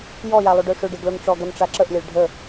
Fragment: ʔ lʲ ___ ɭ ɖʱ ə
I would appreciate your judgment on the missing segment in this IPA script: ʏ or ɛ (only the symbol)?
ɛ